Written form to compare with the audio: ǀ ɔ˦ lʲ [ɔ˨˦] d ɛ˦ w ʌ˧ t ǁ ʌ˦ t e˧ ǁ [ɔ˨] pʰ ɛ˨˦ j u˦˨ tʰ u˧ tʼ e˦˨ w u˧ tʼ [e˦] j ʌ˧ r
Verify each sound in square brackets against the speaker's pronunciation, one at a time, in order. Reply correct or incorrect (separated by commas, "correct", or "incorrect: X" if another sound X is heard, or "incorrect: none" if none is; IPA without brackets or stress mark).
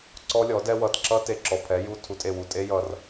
correct, correct, correct